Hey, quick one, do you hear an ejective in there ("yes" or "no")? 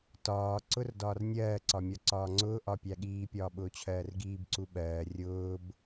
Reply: no